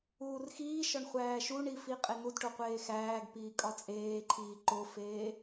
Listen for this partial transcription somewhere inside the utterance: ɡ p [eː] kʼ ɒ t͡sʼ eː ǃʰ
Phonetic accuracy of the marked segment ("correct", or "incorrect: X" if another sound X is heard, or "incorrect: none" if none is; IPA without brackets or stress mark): incorrect: iː